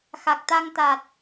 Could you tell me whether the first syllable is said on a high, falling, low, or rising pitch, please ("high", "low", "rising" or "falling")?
low